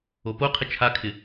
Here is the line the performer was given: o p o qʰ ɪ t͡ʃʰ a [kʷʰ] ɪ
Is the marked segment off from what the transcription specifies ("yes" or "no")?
yes